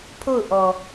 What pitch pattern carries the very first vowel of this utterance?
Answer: falling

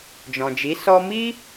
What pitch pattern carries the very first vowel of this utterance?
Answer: low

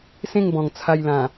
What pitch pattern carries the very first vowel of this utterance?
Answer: falling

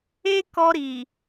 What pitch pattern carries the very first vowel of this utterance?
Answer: high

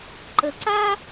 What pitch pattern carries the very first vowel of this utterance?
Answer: low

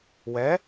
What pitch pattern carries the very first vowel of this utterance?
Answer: rising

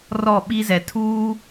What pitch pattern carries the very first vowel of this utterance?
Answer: falling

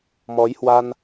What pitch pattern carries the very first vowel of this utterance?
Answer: rising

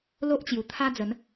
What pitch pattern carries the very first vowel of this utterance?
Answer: high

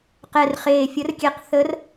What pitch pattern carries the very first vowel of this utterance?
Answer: low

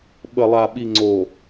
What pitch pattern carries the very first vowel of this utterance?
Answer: low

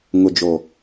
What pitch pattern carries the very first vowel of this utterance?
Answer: low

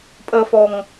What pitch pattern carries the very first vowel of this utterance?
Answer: high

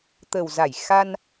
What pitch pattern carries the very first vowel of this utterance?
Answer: low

